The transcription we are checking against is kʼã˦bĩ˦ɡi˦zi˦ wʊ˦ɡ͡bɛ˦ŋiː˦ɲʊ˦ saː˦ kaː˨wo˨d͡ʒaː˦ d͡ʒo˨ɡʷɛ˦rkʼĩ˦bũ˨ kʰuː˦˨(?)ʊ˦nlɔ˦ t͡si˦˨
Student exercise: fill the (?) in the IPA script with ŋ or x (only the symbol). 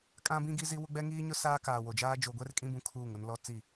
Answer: ŋ